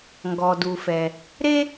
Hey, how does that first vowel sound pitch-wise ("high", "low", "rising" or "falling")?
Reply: low